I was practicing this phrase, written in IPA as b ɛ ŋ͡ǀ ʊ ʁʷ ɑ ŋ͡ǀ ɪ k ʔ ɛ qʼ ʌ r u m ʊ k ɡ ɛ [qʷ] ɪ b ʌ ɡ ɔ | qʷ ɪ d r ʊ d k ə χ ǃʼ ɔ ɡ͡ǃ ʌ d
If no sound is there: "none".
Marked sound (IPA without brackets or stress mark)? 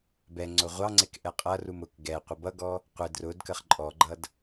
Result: qʷ